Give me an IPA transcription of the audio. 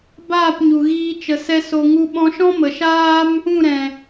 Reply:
b aː˦˨ p ɲ u˨ ɣ iː˧ t͡ʃ ə˨ s ɛ˧ s o˧ ŋ u˦ ɓ ɔ̃˧ ʃ ɔ̃˦ m ə˨ ʃ aː˦ m | ũ˦˨ ɾ ɛ̃˨

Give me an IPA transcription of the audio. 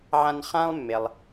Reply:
ʕ ã˦ n χ ã˥ lˠ mː e˩ lˠ

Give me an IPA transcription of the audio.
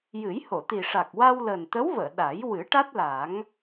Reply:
j ɨ˨˩˦ j h o˨˩˨ t̪ i˨˩ ʂ a˨˩ k̚ w a˧ w l əː˨˩ n t̪ ə˧˥ w v əː˨˩˨ ɗ a˨˩˦ j w ɨ˨˩˦ ʈ a˦˥ t̚ l a˨˩˦ ŋ

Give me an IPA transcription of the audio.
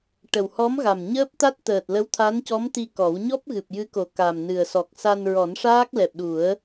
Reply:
ʈ ə˨˩ w h ɔ˧˥ m ɣ a˨˩ m ɲ əː˦˥ p̚ t̪ a˦˥ t̚ t̪ əː˨˩ t̚ l ə˧˥ w t̪ʰ a˧˥ n c ɔ˧˥ m t̪ i˧ k ɔ˨˩˦ w ɲ ɔ˦˥ p̚ ɣ ɨ˨˩ p̚ j ɨ˧˥ k o˨˩ k a˨˩ m n ɨ˨˩ ə̯ s ɔ˨˩ k̚ s a˧ n ɹ ɔ˨˩˦ n ʂ aː˦˥ k̚ l ɛ˨˩ p̚ ɗ u˨˩˦ ə̯

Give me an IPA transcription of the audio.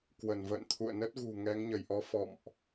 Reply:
k w ə˧˩ n v ə̰ː˧˨ n t̪ʰ ṵ˧˨ ə̯ n ə˦˥ t̚ ɣ ṳ˨˩ ŋ ɛ˨˦ ŋ ɲ ə˧˩ j ʔ ɔ˧ f ɔ̰˧˨ m ʔ

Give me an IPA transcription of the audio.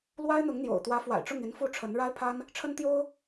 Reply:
l w a˥ ɪ̯ n̪ ʊ˧˥ ŋ n̪ j o̰˨˩ ʊ̯ t̪ w ä˧˥ f w a̰˨˩ ɪ̯ ʈ͡ʂ ʊ˥˩ ŋ i˧˥ n f u˥˩ ʈ͡ʂʰ ə˧˥ n ɻ a˥ ɪ̯ pʰ a˥ n | ʈ͡ʂʰ ə˥ n t̪ j o˥ ʊ̯

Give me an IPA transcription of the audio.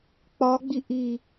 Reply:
k͡p ɒ ɡ͡b i ʔ i

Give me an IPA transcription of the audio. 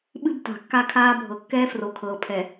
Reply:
ɓ ɨ˦ b t a̤˨ kː a˦ kʰ aː˦ bʱ ɤ˨ kː ɛː˦ f r o˨ kʰ ɤː˨ pʰ ɛ˨

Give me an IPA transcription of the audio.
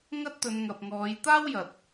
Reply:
ŋ ɐ˥ t̚ t̪ ɵ˨˧ n ŋ ɐ˨ p̚ ŋ ɔː˨˧ j t̪ aː˥ w j ɐ˨ t̚

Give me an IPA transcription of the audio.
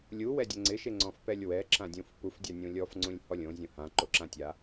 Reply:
lʲ u w ɛ dʲ ɛ ŋ͡ǀ ɪ ʃ e ŋ͡ǀ ɔ̃ f p ɛ lʲ w ɛ ǁ ã dʲ ũ f p u f dʲ a nʲ ũ lʲ ɔ f ŋ͡ǀ ũ lʲ h ɔ lʲ õ zʲ õ h ã ǃ o ǁ ã tʲ a

